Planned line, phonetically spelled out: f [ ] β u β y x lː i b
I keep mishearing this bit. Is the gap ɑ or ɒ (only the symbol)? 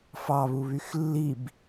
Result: ɑ